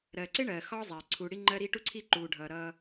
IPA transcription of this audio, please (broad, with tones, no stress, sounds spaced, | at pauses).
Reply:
ɾ ɜ˨ ǀ ɪ˦ ɳ ɜː˨ x ɒ˦ zˤ æ˨ ǀʰ u˨ ɽ i˦ ŋ͡ǃ ɜ˦ ɾ i˦ ʈ u˦ ǀʰ i˦ ǃ uː˨ ɖʱ ʌː˨ ɾ ʌː˦